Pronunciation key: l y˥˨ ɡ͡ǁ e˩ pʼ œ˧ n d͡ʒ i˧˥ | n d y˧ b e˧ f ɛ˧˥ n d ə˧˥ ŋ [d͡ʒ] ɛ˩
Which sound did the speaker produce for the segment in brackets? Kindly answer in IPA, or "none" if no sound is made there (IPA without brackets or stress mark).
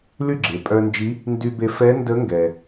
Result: ɡ